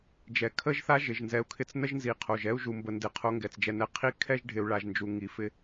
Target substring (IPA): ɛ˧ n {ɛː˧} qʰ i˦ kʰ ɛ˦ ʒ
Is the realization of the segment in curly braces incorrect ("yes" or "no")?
yes